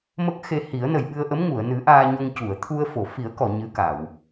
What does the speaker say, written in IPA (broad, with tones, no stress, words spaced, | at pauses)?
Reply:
mə˦˥k̚xe˧hi˨˩˦ə̯ nə˨˩jɓɨ˧ə̯ʔə˧˥mŋu˨˩˨ə̯ nɨ˨˩˦ ʔaː˧ɲo˧ŋcu˨˩˨ə̯ t̪ʰu˧ə̯fo˨˩˨fi˨˩˦ə̯kɔ˨˩˨ ɲɨ˧˥ka˨˩˨w